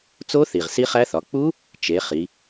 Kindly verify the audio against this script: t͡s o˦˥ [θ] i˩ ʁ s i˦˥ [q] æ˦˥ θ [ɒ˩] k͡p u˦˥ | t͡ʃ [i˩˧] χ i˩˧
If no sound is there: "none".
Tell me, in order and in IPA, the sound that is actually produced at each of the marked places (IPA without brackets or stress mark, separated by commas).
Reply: θ, χ, ɒ˩˧, e˩˧